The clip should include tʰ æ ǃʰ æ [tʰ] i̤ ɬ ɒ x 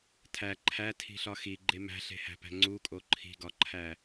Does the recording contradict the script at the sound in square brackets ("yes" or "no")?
no